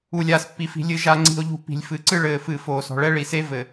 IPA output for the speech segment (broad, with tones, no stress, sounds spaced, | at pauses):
u˨ lʲ aː˨ s pː i˨ f i̤˨ lʲ ɨ˨ ʒ a˨ ŋ͡ǀ i̤˨ o̯ ʎ ṳ˨ p i̤˨ lʲ f ɨ˨ ǀ ɨ˦ ɭ ɘː˨ f ɨ˨ f oː˨ s ɔ̤˨ ɭ ɛ˦ ɭ i˨ s e˦ v ɘ˨